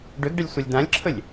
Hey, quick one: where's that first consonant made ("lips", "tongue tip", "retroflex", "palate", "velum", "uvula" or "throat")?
retroflex